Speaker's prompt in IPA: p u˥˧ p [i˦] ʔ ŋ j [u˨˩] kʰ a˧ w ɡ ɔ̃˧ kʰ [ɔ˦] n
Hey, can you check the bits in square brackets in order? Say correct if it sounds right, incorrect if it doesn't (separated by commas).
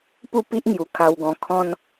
correct, correct, incorrect